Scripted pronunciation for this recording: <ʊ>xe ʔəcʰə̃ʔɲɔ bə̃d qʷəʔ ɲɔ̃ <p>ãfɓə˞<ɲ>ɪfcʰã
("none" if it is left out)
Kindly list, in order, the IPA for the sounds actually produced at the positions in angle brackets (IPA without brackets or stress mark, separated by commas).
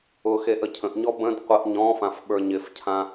ʊ, f, ɲ